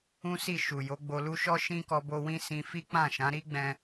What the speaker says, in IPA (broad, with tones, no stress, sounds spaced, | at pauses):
ũ˦ s i˦˨ ʃ u˨ j o˨˦ ɡ͡b o˧ l u˦ ʃ ɔ˦ ʃ ĩ˦ k ɔ˧ b o˧ w ĩ˦ s ĩ˧ f i˦ k͡p ã˦˨ ʃ ã˨˦ ɾ i˦ ɡ͡b ɛ̃˧